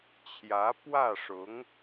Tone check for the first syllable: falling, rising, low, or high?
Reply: rising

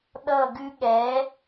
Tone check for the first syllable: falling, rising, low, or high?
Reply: falling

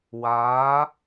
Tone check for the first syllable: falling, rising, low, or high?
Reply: rising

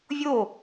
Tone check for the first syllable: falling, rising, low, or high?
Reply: falling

